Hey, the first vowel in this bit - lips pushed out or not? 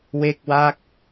no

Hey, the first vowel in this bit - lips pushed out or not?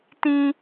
no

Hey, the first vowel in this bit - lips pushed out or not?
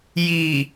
no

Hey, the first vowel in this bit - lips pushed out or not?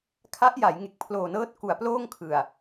no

